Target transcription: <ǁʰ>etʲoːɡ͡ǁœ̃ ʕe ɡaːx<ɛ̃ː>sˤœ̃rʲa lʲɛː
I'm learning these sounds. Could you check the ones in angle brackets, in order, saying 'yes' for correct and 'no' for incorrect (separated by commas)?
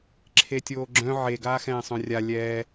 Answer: yes, yes